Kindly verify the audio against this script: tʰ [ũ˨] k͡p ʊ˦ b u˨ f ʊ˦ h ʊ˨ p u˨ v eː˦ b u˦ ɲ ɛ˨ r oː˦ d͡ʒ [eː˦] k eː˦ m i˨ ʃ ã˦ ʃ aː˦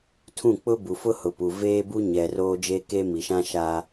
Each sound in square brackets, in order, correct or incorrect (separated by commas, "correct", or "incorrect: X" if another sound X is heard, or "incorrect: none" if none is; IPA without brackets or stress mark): incorrect: ũ˦˨, correct